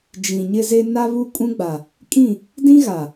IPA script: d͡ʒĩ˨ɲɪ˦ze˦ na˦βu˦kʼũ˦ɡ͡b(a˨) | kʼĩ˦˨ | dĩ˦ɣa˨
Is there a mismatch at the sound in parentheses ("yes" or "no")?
no